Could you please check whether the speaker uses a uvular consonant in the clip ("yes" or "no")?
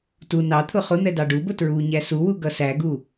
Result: yes